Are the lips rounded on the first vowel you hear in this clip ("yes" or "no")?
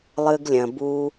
no